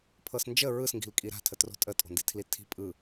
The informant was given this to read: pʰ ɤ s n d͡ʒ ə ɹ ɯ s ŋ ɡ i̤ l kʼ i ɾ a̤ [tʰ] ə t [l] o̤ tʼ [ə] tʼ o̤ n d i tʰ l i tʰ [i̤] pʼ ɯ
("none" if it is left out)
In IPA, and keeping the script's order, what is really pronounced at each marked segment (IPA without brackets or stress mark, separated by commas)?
tʰ, r, ə, i̤